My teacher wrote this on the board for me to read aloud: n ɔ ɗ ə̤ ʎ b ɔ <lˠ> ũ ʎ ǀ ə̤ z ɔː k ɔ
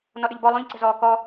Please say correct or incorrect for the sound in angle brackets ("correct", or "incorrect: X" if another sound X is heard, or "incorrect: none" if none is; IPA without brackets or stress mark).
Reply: correct